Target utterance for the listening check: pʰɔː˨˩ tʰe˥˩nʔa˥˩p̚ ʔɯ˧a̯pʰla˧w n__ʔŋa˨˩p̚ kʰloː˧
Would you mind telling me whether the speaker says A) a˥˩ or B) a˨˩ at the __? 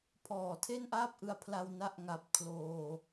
A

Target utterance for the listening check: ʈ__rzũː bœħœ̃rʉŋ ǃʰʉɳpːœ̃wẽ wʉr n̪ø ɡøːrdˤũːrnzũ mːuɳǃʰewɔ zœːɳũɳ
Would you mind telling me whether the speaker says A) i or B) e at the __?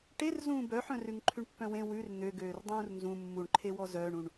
B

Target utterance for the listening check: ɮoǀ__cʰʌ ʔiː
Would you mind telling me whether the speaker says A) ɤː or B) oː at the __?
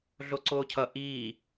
B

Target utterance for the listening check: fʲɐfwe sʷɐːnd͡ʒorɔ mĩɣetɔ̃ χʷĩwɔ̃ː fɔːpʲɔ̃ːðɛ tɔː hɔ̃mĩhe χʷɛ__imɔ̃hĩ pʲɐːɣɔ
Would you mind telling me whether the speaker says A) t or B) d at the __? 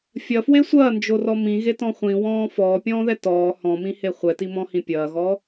A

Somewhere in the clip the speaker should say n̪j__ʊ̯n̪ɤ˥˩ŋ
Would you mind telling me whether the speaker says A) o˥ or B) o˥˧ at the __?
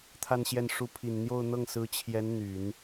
B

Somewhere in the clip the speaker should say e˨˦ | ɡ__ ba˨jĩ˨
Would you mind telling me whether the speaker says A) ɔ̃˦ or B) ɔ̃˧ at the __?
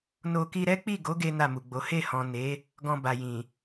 B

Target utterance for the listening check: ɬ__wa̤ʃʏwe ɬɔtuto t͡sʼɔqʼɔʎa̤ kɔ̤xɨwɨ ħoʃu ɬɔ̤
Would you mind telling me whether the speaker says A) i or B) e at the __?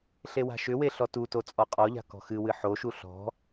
B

